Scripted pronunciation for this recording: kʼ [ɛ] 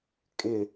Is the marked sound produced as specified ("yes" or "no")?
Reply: no